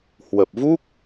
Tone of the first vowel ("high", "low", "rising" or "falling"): low